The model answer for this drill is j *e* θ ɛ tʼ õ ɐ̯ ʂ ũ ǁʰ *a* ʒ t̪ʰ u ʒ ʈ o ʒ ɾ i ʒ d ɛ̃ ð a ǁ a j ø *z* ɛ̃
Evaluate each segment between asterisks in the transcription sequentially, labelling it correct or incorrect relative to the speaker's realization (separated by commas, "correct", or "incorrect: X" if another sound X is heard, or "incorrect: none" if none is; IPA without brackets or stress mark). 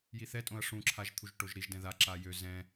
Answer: incorrect: i, correct, correct